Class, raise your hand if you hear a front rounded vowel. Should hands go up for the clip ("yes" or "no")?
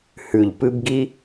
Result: no